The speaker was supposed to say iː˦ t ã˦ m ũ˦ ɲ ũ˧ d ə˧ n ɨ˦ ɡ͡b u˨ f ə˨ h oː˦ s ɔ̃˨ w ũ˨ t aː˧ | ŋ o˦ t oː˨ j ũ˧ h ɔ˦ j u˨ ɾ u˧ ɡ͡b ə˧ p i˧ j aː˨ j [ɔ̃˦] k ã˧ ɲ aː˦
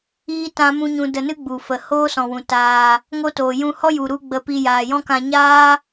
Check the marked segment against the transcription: correct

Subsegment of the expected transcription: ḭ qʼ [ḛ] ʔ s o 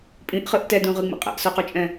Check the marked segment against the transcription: incorrect: ɛ̰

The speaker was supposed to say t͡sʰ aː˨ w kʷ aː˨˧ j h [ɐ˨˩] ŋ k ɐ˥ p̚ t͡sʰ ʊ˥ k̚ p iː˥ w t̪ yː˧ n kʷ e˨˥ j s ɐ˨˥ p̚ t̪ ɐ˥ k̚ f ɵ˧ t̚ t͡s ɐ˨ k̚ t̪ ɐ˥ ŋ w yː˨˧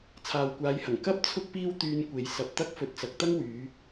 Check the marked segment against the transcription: correct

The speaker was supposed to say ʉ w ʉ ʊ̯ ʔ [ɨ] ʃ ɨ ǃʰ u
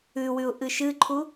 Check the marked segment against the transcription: correct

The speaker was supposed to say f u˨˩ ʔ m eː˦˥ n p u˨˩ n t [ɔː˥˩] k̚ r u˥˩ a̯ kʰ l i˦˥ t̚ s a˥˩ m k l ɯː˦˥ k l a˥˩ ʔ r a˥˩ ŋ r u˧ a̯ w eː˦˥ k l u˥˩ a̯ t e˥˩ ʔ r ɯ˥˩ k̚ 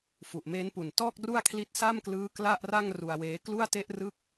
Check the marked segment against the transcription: correct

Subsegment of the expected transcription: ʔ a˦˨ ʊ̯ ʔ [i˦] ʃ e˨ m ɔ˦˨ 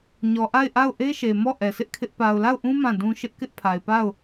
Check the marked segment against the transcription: incorrect: e˦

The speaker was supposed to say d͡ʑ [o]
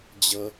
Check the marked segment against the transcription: incorrect: ɤ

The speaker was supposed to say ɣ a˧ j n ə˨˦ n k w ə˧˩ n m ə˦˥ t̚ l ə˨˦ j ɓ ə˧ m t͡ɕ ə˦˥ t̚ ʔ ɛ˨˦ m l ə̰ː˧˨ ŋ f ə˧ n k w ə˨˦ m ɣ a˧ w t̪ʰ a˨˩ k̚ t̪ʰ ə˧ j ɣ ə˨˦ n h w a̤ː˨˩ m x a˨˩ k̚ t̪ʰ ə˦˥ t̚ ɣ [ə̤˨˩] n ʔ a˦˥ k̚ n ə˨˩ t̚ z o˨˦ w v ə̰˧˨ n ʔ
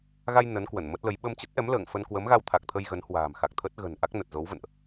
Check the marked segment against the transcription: correct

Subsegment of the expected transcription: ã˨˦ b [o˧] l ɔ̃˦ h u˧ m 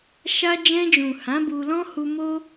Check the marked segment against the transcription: incorrect: u˧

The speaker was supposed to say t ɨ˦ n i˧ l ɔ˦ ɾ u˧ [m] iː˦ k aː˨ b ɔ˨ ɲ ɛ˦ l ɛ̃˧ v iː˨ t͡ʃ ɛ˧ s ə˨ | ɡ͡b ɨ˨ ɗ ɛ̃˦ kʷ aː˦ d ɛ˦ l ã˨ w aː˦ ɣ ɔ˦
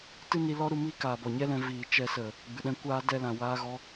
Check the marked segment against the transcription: correct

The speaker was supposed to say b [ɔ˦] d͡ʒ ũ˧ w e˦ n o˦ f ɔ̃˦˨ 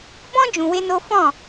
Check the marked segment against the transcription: incorrect: ɔ̃˦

